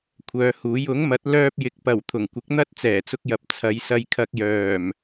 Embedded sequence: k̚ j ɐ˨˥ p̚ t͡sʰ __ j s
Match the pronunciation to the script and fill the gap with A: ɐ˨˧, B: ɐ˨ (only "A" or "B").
A